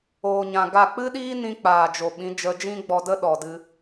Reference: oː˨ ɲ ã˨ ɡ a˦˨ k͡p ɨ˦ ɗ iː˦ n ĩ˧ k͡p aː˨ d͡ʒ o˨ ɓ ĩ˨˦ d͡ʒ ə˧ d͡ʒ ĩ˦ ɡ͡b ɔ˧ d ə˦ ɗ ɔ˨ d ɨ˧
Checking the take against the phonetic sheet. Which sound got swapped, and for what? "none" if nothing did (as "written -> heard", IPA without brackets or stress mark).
none